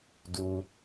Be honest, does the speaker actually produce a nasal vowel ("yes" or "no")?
no